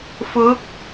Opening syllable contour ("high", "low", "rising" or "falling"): rising